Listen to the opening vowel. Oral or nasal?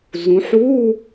nasal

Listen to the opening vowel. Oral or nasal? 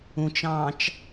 nasal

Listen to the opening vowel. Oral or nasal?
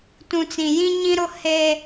nasal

